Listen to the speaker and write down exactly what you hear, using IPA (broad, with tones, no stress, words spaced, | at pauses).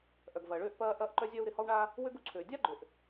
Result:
ʔœ˩ɡvɐː˩ɭøː˦ʔpɐː˦ ʔɐː˦ʔǃœ˦zʲœ˦u̯ ɾɪ˨hɔ˦wɳa˦ | wø˥ɡ u˨ǀʰøː˩dʲa˥ɡ͡ǃø˩ʔ